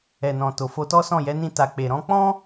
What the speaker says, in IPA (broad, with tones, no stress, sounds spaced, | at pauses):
ɛ˨ n ɔ̃˨ t o˨ f o˧ t ɔ˦ s ɔ̃˦˨ j ɛ˨˦ n ĩ˧ t a˨ k͡p e˨ ɾ ɔ̃˧ k͡p ɔ̃˦